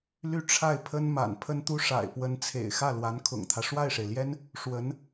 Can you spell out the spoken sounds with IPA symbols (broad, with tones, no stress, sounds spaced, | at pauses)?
l y˥˧ ʈ͡ʂʰ a˥˩ ɪ̯ pʰ ə˥ n m a̰˨˩ n pʰ ə˥ n t̪ u˥ ʂ a̰˨˩ ɪ̯ p w ə˧˥ n t͡sʰ ḛ˨˩ ɪ̯ x ä˥˩ l w a˧˥ n kʰ ʊ̰˨˩ ŋ t̪ʰ ä˦ ʂ w a˥˩ ɪ̯ ʂ e˩ ɪ̯ l j ɛ˥ n | ʂ w ə˧˥ n